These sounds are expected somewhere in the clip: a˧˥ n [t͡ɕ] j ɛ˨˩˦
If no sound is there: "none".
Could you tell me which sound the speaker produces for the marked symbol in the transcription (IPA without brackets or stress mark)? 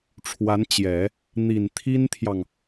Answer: t͡ɕ